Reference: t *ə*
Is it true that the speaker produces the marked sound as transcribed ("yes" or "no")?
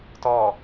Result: no